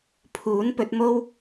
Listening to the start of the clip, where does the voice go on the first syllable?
rising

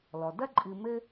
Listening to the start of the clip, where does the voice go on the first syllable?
low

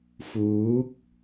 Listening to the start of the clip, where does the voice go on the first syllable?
rising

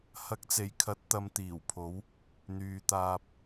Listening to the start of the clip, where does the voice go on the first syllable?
rising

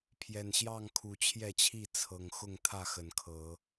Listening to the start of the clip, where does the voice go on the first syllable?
low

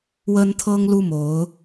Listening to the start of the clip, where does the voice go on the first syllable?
high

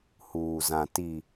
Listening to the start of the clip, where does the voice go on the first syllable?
low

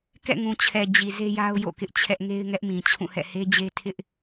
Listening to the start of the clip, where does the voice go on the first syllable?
falling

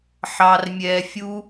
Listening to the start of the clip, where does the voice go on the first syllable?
low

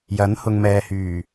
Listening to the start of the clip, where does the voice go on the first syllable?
rising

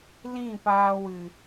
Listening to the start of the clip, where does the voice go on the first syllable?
falling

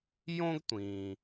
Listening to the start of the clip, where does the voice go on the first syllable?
high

